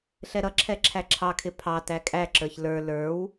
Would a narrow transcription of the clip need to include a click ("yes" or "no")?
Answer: yes